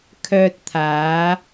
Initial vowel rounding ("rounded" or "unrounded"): rounded